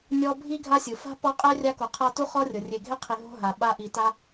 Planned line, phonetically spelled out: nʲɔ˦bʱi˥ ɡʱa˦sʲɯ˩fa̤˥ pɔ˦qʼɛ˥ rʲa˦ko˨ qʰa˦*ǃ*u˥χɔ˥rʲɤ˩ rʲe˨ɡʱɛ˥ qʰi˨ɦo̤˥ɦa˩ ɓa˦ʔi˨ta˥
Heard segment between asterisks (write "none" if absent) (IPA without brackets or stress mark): t